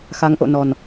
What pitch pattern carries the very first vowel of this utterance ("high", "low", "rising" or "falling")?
rising